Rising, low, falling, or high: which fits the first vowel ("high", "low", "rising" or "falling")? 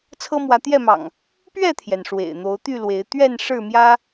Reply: high